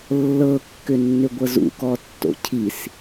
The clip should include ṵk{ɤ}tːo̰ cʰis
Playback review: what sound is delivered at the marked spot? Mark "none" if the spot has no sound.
ɔ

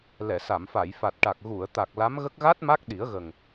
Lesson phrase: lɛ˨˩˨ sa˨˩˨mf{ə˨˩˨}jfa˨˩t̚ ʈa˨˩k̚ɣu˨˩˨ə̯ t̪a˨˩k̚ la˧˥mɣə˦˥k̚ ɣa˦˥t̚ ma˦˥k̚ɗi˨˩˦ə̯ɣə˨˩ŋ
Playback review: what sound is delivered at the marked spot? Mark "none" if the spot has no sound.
a˨˩˨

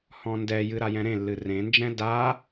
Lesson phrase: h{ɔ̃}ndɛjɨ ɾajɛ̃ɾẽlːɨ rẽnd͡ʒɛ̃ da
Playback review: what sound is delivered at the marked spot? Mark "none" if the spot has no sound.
ɔ̃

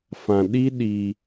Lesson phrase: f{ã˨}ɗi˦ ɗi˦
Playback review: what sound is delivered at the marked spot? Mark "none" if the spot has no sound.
ã˨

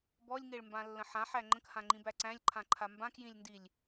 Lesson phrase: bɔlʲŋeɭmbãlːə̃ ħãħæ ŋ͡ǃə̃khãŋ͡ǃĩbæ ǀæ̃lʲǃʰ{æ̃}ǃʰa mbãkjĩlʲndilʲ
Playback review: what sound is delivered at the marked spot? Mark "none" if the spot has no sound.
ã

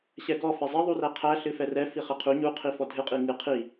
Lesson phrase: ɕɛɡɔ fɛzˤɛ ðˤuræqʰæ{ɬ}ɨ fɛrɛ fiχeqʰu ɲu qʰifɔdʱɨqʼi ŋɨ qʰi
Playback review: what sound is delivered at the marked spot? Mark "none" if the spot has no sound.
ɬ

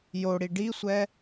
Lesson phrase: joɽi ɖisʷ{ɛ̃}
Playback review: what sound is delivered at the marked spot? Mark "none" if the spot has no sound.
ɛ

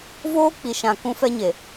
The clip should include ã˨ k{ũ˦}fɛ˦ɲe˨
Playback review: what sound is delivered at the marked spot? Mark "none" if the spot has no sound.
ũ˦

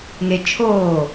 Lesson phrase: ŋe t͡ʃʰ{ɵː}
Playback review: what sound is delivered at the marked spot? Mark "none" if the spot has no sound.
oː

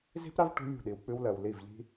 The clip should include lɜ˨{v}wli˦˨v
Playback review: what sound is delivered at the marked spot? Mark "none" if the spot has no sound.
none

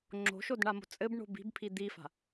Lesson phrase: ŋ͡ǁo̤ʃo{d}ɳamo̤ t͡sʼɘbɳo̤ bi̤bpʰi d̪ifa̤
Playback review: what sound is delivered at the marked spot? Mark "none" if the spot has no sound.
d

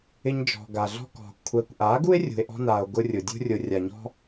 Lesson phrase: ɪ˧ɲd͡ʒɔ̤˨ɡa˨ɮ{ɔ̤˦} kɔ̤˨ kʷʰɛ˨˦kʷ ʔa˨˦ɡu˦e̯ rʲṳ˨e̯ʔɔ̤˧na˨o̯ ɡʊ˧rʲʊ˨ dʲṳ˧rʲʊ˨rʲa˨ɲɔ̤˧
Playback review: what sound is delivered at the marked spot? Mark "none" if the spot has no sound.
ɔ̤˧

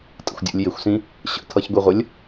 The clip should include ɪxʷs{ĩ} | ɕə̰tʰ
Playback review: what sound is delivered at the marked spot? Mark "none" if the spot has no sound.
ĩ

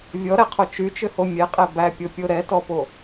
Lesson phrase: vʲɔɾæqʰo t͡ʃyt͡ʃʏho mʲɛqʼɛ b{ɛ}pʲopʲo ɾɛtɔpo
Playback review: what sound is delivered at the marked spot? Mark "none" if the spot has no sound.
æ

